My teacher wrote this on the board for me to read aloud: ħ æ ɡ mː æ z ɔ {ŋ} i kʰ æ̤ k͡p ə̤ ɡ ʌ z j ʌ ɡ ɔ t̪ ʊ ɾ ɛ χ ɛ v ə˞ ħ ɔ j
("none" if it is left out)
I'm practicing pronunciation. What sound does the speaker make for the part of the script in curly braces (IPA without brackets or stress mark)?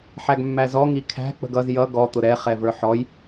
ŋ